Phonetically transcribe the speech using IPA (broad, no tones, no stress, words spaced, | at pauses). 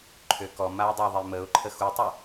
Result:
ǃʰøkɔmaʊ̯ dˤaðˤeməʊ̯ǃʰə xutˤœ